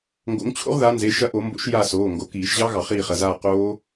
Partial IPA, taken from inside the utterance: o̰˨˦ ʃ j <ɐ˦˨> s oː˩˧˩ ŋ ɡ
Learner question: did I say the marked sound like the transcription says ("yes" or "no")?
no